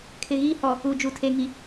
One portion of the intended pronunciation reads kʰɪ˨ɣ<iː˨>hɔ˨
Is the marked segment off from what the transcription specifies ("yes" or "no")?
yes